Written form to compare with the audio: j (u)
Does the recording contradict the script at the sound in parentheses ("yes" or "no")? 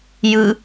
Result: yes